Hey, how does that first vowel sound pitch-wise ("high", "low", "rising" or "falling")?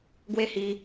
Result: high